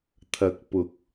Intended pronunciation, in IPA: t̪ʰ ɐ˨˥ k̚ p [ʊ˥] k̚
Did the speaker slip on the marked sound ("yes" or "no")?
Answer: yes